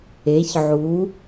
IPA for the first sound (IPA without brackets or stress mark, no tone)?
e